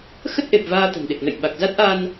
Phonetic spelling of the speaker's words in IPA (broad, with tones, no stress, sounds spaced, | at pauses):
x ə˦˥ t̚ ʔ e˨˩ p̚ v aː˧ t̪ ə̤˨˩ n ɗ e˨˩ k̚ n ə̰˧˨ j ɓ a˨˩ k̚ z a˦˥ t̚ ʔ a˧ n